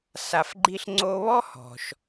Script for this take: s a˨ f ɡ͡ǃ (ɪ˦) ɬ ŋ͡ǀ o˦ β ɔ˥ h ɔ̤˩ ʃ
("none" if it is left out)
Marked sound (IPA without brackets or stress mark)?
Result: i˦